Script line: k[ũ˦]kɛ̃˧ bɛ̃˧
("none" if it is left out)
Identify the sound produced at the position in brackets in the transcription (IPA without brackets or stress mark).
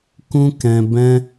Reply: ũ˦